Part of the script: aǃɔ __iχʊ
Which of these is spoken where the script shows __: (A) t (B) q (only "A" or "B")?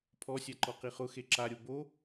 B